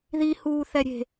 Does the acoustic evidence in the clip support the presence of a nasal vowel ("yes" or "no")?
no